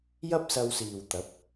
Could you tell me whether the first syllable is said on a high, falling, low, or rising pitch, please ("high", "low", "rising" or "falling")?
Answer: high